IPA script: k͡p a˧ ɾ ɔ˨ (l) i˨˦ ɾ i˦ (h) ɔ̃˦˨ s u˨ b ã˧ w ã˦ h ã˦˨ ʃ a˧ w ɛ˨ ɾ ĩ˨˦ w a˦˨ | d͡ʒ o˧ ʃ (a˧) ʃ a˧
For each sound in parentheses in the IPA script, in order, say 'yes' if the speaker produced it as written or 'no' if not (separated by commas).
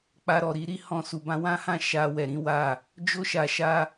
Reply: no, yes, no